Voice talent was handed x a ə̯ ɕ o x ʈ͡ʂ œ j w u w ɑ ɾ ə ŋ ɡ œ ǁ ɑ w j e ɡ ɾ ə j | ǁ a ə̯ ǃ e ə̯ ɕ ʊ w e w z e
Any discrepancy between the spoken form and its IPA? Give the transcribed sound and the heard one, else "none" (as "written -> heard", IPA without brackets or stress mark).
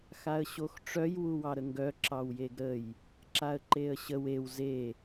ʊ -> ə